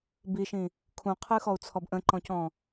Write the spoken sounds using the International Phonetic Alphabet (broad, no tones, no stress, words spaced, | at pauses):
biʃĩ | kʰũqʰɨxɔu̯t͡sʰɔb ʔə̃ǃɔ̃cɔ̃